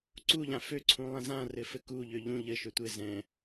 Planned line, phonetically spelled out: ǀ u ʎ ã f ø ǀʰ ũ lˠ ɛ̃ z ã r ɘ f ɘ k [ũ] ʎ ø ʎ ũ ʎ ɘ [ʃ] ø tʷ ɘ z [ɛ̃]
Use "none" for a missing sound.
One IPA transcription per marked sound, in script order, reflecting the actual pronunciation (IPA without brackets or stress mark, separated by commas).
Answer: u, ʃ, ɛ̃